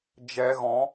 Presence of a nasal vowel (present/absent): present